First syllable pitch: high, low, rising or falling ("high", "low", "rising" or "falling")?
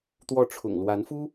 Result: falling